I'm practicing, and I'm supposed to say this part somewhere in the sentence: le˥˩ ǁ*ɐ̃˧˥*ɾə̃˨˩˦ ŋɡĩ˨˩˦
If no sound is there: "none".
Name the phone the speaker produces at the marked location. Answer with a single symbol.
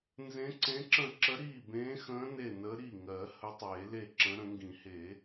ə̃˧˥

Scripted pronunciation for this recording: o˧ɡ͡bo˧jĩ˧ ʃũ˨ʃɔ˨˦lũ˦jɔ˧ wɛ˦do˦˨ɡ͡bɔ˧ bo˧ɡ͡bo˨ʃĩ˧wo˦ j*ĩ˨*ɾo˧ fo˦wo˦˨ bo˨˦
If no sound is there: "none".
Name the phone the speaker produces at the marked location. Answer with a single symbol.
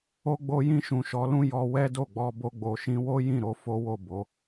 ĩ˦˨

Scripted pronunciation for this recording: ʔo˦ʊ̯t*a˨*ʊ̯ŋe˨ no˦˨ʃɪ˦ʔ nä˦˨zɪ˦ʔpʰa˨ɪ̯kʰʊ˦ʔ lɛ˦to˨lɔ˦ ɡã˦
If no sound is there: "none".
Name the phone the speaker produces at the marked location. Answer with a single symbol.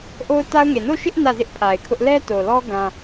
a˦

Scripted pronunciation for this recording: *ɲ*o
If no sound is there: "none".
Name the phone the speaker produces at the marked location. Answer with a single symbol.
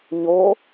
ɲ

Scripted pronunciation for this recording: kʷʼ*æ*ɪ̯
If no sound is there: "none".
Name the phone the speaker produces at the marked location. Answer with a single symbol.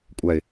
æ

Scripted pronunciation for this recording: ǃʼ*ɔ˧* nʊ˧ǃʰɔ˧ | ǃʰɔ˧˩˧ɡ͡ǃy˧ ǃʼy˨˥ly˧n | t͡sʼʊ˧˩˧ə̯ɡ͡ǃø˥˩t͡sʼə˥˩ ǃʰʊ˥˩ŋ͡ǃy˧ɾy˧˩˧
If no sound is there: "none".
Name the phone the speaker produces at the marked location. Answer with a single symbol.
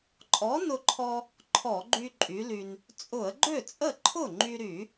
ɔ˨˥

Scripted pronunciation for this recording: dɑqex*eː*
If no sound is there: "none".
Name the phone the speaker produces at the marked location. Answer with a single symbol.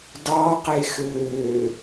øː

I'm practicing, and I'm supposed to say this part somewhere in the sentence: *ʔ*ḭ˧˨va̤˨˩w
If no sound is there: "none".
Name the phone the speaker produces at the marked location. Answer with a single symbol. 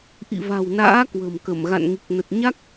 ʔ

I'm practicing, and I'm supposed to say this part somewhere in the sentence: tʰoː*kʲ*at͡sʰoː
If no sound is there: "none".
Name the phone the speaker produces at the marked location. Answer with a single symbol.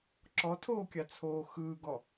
kʲ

